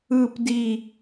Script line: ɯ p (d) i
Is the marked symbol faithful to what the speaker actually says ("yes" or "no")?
yes